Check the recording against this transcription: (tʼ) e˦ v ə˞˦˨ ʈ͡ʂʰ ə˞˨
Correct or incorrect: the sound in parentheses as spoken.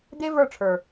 incorrect: d̪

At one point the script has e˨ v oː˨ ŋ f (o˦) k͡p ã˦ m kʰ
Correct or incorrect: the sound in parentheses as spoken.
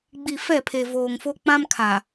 correct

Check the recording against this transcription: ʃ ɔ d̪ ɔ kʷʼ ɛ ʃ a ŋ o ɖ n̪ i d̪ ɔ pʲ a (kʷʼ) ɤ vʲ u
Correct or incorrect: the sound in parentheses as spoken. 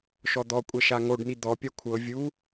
incorrect: kʷʰ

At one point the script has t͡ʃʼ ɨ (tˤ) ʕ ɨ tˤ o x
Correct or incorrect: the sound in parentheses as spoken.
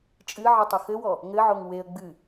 incorrect: none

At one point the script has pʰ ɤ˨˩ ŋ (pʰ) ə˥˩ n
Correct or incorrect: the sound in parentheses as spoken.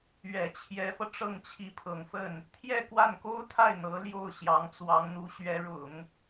incorrect: f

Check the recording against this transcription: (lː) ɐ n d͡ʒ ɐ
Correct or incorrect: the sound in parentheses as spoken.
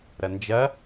incorrect: ɾ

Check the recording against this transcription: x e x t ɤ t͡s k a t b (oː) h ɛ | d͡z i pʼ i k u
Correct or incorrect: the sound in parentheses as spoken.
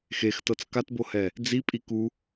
incorrect: o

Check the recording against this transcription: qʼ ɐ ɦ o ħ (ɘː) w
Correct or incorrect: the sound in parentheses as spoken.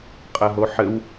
incorrect: ɘ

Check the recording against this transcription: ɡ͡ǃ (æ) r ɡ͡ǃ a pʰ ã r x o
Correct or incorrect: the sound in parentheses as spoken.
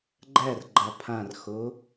correct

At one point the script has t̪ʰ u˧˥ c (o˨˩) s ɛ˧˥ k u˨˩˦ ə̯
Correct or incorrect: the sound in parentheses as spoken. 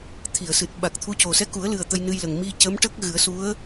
correct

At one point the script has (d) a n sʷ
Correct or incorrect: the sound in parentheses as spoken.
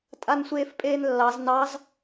incorrect: tʼ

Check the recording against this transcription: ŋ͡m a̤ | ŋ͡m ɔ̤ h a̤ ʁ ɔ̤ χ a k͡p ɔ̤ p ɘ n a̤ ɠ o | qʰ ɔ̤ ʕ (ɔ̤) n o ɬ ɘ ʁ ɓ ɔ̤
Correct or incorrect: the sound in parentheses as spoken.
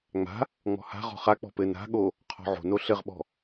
incorrect: o̤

